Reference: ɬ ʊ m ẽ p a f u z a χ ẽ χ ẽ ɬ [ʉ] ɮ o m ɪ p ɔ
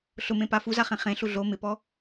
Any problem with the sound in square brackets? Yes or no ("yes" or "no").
yes